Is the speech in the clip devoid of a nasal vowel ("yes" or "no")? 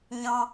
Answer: no